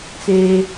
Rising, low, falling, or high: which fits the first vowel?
high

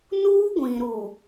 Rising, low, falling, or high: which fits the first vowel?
high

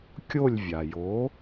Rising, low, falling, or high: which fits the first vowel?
falling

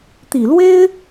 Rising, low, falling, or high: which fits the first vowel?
low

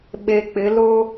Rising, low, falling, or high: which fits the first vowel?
low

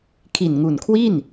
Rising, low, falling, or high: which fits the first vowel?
low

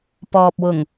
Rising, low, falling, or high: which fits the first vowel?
low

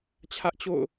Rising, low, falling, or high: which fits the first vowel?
high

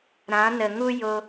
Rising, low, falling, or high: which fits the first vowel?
rising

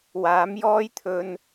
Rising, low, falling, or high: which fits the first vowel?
rising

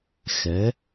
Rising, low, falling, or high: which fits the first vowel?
rising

